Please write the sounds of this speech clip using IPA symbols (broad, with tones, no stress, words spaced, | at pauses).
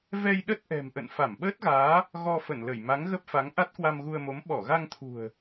vɛ˧j ɗə˦˥t̚ʔɛ̤˨˩mʔə̰˧˨n fa˧˩mɓəː˦˥t̚ɣaː˨˦ | ɣɔ˧fə˧˩nlə˧˩j ma˨˦ŋɣə˦˥p̚fa˨˦ŋ ʔa˦˥t̚kwa˧mɣu˧ə̯mo˨˦m ɓɔ˧˩ɣa˧ŋt̪ʰṳ˨˩ə̯